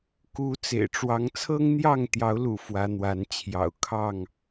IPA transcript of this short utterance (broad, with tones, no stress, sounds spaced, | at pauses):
k u˨˦ t͡s ḛ˨˩ ɪ̯ ʈ͡ʂ w ɑ˨˦ ŋ t͡sʰ ɤ˦ ŋ n̪ j ɑ˥˨ ŋ t̪ j ɑ˨˦ ʊ̯ l ṵ˨˩ f w ä˨˦ n̪ w a˨˦ n t͡ɕʰ j ɑ̰˨˩ ʊ̯ kʰ ɑ˥˨ ŋ